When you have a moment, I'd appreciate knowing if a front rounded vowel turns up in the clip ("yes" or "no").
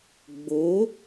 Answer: no